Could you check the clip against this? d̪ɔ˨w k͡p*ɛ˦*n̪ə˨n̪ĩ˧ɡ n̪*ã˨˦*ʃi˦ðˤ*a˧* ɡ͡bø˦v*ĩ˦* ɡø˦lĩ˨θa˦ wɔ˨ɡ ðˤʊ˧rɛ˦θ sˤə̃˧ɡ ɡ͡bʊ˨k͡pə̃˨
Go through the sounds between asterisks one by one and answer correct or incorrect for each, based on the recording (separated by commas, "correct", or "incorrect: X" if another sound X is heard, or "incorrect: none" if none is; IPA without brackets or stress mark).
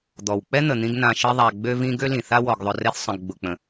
correct, incorrect: ã˧, correct, correct